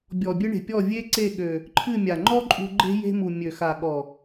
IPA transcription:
bʲ ɔ˨ bʲ ɨ˧ ɳ e̤˨ pʲ ɔ˦˨ vʲ e˦ ǀ e˦˨ ɠ ø˨ | ǃʰ ɨ˦˨ mʲ a˨ ŋ͡ǃ ɔ˦ ǃʼ ṳ˧ ɡ͡ǃ e̤˦ j e̤˧ m u˨ mʲ ø˨ x a˨ ɠ ɔ˨

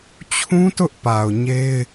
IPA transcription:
t͡ɕʰ ũ˦ t ʊ˦ ʔ p a˨ ʊ̯ ɲ e˦ ɪ̯

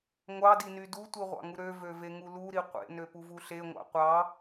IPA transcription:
ŋʷ ɑ d i n y d u tʷ i ʁʷ ɑ̰ ŋ u ɾ ø v ø v e ŋ u l u ɾ i qʷ ḛ n ø p u v u ɬ e ŋʷ ɑ̰ qʷ ɑ

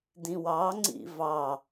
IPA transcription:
d ĩ w ɑ ŋ͡ǀ ḭ v ɑ

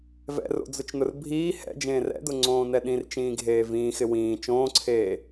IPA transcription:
v ɛ̰ r o̰ d͡z ʊ t͡ʃ n ʊ r bʱ iː h ɛ̰ d͡ʒ ẽː r ɛ̰ d ʊ ŋ͡ǀ õː n ɛ ɗ ĩ r t͡ʃ ĩː ɡʱ eː v ĩː x ɪ w ĩː t͡ʃ õː ǀʰ eː

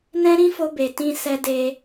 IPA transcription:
n ɛ̃˦ ɾ ĩ˦ f o˧ b e˨ t ĩ˧ s ɛ˧ d e˧

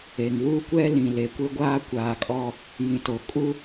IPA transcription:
e˨ ŋ w u˦ kʷ ɛ˦ l ĩ˨ l e˨ kʷ e˦ ɡʷ aː˦ kʷ aː˨ kʼ ɔ˦ | j ĩ˨ t o˨ kʼ u˦

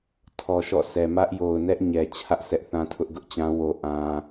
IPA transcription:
tʰ ɔ˨ ʃ ɔ̰˦˨ sʰ ɛ˨ m ä˦ ʔ j o˨ ʊ̯ n ɛ˦ ʔ ɲ ɛ˨ t͡ɕʰ ä˦ ʔ s ɛ˦ ʔ θ ã˦ tʰ ʊ˦ ʔ ɡ ʊ˦ ʔ t͡ɕ ã˦ w o˦ ʔ ã˦

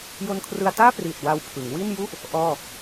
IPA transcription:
j o˧ n kʰ r ɯ˧ a̯ t aː˥˩ p r iː˨˩ t̚ w a˧ w pʰ ɯ˩˦ ŋ w i˥˩ n j u˥˩ ʔ | ʔ ɔː˥˩

